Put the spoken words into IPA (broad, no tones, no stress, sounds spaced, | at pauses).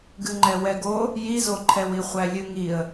ɡ ɨ ŋ͡ǃ ɛ w ɛ ɡ o | j i z o ǃʰ ɛ w i χʷ æ lʲ ɨ ŋ i ə̯